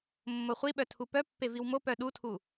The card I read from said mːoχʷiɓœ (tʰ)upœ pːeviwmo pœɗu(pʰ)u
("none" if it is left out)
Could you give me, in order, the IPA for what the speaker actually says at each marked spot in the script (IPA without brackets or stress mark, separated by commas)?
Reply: tʰ, tʰ